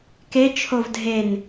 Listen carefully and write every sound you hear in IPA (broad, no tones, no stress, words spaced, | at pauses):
ket͡ʃʰov dʱen